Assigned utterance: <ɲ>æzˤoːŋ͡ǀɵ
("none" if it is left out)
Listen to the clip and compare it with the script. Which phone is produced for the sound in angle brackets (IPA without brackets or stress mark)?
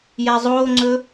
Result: j